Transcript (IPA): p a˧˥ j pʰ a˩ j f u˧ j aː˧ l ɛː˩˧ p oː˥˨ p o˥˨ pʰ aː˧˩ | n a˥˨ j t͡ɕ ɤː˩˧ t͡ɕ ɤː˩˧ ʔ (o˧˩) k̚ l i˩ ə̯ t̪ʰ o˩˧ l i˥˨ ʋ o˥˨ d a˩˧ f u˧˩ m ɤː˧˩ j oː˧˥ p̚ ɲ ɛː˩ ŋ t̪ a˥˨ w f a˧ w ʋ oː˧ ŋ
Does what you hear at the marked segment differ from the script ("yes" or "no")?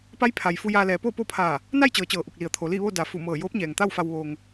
yes